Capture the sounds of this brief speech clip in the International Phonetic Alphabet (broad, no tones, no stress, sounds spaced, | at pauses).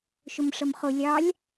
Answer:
ʃ ʊ m ʂ ʌ m χ ʊ lʲ ɑ lʲ